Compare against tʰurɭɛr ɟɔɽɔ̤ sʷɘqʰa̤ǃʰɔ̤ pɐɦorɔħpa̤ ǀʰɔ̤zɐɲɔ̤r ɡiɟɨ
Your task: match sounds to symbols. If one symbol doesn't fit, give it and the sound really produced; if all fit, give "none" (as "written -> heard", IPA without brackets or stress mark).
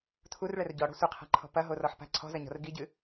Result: none